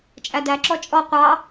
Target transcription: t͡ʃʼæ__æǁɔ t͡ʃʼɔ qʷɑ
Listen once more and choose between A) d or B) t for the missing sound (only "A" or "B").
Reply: A